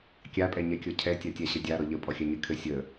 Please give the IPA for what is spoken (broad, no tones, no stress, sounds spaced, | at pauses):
kʲ a pʼ ɛ ɲ ɛ kʲ ɔ cʰ ɛ tʲ a tʲ a ɕ ɘ dʲ a ɾ ɔ ʎ ə pʼ ɔ xʲ a ɲ ɘ kʰ ɘ sʲ ə